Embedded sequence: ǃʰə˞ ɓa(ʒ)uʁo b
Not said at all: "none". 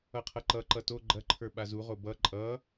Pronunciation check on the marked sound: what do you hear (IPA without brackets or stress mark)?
z